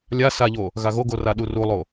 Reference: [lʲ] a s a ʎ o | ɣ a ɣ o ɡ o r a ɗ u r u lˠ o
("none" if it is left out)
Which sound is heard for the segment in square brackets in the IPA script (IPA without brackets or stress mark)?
lʲ